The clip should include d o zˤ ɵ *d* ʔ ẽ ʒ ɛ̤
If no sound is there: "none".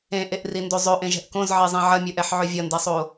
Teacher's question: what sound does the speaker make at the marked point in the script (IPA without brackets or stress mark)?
none